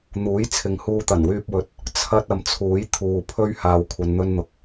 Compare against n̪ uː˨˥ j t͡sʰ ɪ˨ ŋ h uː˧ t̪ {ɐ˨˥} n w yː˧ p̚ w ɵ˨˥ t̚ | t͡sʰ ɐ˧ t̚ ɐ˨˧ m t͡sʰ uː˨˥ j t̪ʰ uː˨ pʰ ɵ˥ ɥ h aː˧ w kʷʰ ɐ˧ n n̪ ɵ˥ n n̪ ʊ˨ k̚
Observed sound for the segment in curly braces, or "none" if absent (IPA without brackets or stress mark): ɐ˨˩